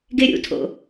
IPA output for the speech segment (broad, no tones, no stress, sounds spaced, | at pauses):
ɡ e ɾʲ ṵ tʰ o̰